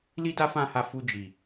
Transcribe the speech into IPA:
l i˦ d a˦ f ã˦˨ h a˧ f u˧ d͡ʒ i˨

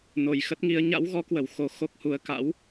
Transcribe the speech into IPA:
n o˨˩ j x ə˦˥ t̚ ŋ i˨˦ ə̯ ɲ a̰˧˥ w ɣ ɔ˨˦ k w ə˧˩ w x o˧ x o˦˥ k̚ h u˨˦ ə̯ k a̰˧˥ w

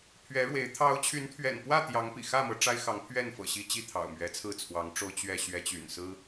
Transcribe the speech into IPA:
pʰ ɥ ɛ˨˦ ɻ w e˨˦ ɪ̯ t̪ʰ ɑ˨˦ ʊ̯ t͡ɕʰ y˨˦ n t̪ʰ ɥ ɛ̰˨˩ n p w ä˥˨ t̪ j ɑ˨˦ ŋ p ḭ˨˩ x ä˥˨ m ɤ˨˦ ʈ͡ʂ a˦ ɪ̯ x ɑ˨˦ ŋ pʰ ɥ ɛ˥˨ n f ɤ̰˨˩ ɕ i˦ t͡ɕ i˥˨ t̪ʰ ɑ̰˨˩ ʊ̯ m ɥ ɛ˨˦ t͡sʰ ɹ̩˥˨ t͡sʰ w ɑ˨˦ ŋ ʈ͡ʂ o˦ ʊ̯ t͡ɕ ɥ ɛ˥˨ ɕ ɥ ɛ˨˦ t͡ɕ y̰˨˩ n s ɹ̩˦

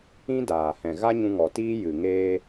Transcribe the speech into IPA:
ĩ˦ d aː˨ h ɛ̃˨ ɣ a˦ ɲ ũ˧ ŋ ɔ˨ t iː˦ j ɨ˨ ŋ eː˧

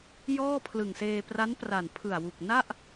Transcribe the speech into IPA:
j ɔː˥˩ pʰ l ɯ˨˩ ŋ s eː˧ p r a˦˥ n p r a˨˩ n pʰ ɯ˨˩ a̯ w u˨˩ k̚ n a˥˩ ʔ

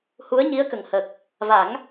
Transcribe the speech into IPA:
h u˧˥ ə̯ ɲ i˧˥ ə̯ k ə˨˩ ŋ h ə˨˩ k̚ | v a˨˩˦ ŋ

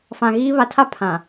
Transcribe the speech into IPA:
f ã˨ ɣ i˦ β a˨ tʰ a˦ pʰ ã˨

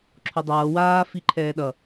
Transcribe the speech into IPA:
ǁʰ o dˤ ʌː w aː f i ǃʰ ɛː ɗ ʌ

